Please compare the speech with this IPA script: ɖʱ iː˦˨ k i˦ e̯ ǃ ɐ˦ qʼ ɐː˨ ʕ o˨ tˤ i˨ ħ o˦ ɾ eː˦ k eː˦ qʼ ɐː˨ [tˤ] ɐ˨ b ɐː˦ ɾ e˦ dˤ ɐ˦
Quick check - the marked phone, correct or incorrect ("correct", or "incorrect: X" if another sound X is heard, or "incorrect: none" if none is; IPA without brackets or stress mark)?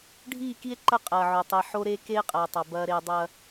correct